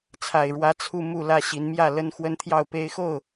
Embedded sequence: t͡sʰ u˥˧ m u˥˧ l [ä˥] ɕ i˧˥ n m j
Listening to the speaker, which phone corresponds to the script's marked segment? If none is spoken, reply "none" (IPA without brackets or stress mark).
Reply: ä˥˩